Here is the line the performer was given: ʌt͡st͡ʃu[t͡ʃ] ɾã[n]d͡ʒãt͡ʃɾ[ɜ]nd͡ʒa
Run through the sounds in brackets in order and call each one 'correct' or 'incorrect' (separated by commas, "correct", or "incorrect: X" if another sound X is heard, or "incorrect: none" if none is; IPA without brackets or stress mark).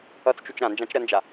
correct, correct, correct